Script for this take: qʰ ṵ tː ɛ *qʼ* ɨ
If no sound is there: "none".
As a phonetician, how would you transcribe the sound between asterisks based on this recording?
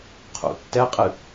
qʼ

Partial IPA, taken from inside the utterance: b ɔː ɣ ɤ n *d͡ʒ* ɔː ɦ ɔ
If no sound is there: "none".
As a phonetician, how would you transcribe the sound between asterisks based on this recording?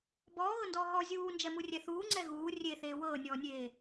d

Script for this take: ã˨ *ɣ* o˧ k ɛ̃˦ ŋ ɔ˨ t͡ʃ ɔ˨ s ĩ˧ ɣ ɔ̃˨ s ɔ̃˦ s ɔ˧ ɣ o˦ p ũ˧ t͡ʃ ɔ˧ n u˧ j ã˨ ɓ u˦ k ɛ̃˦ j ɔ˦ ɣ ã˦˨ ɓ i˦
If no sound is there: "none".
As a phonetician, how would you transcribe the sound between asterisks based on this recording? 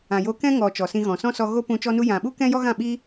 j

